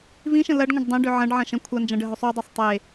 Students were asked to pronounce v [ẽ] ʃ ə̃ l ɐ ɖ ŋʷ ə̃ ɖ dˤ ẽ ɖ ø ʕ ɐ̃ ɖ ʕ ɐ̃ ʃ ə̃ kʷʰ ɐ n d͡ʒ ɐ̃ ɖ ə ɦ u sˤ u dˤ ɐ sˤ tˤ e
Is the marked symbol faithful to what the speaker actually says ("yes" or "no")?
no